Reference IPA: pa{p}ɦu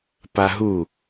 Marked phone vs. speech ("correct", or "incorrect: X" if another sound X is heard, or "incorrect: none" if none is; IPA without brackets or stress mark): incorrect: none